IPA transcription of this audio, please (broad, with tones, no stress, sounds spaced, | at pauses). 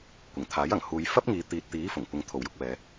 kʷ ɪ˨˩ ŋ t̪ʰ aː˨˥ j ɐ˨˩ ŋ h uː˨˧ j f ɐ˥ p̚ ŋ iː˨˧ t̪ iː˨ t̚ t̪ iː˨˥ f ʊ˨˩ ŋ kʷ ɪ˨ ŋ t̪ʰ o˨˩ w j ʊ˧ k̚ w ɛː˨˧